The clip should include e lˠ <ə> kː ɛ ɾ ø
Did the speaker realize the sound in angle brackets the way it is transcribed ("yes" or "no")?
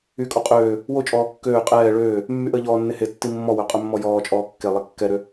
no